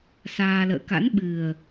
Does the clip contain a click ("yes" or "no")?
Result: no